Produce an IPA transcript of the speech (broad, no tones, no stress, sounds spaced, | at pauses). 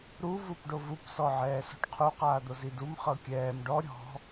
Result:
ɾ u v u p ɖ o v u p s ɔ ʕ ɛː s ɔ̤ ʈ qʰ u q aː d̪ o z i d u m χ ɤ kʲ ɛː m ɖ ɔ ɾʲ ɔ̤